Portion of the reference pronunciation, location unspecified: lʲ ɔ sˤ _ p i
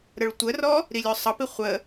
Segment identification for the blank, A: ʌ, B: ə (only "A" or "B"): A